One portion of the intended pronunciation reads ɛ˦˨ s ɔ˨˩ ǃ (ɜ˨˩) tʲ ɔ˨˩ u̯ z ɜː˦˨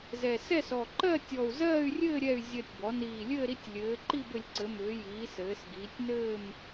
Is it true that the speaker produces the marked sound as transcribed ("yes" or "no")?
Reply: no